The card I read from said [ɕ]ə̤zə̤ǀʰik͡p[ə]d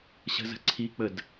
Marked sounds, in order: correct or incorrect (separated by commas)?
correct, correct